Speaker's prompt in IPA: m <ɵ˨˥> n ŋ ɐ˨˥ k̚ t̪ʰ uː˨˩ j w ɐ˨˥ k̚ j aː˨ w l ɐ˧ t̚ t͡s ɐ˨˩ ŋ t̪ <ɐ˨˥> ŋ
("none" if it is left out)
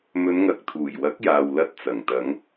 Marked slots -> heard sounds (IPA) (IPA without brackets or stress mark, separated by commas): ɵ˨˧, ɐ˨˧